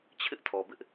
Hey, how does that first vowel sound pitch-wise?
high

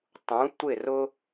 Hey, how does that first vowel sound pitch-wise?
rising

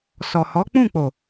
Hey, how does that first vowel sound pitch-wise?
low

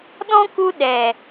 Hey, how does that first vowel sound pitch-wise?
high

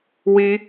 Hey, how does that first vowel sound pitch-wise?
high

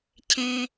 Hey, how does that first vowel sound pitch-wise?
low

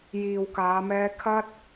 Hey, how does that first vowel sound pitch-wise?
low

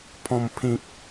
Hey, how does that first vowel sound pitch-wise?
low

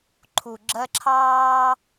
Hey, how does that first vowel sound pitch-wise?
low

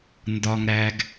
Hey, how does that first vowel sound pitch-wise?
high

